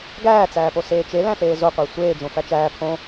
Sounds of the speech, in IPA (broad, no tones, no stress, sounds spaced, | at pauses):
ɡ æː t͡s æː p o s eː t͡ʃ e l æ̃ ɬ eː z o qʷ æ sʷ eː d͡ʒ õ f æ t͡ʃ æː pʰ õ